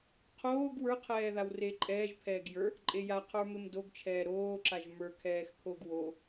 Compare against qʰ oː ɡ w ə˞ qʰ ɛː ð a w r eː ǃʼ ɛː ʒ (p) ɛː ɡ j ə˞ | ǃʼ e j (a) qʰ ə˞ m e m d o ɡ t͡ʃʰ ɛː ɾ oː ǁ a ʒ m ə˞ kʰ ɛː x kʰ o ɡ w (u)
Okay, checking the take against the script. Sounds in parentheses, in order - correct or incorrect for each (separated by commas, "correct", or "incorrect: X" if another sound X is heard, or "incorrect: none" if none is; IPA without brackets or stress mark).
incorrect: pʰ, correct, incorrect: o